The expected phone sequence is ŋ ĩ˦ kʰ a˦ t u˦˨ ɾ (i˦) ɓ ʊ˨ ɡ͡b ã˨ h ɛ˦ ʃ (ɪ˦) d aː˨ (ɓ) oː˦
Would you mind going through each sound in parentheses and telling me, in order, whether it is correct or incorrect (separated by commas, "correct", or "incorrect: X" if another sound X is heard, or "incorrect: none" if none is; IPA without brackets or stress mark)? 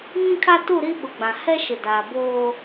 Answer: correct, incorrect: ɪ˨, incorrect: b